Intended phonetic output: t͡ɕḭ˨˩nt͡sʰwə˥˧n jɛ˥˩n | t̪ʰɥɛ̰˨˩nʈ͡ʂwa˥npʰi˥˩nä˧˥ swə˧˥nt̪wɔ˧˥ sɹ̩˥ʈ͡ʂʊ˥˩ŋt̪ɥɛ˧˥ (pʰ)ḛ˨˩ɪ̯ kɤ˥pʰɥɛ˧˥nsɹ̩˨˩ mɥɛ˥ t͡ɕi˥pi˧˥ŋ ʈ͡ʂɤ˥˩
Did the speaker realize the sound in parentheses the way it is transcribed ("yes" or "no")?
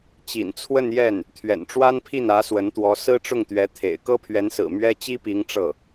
no